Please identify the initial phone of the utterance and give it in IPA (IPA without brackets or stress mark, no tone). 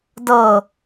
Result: d